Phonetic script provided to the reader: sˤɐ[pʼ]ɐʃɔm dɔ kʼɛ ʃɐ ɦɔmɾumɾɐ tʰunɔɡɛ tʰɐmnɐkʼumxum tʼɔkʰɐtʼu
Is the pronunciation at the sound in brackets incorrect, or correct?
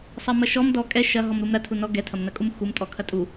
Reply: incorrect